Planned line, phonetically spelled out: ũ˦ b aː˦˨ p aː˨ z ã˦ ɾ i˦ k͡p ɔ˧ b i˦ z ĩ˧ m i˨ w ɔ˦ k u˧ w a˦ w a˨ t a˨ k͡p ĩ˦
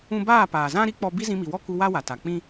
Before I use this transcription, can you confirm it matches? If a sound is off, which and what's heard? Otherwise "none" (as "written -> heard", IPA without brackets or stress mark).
none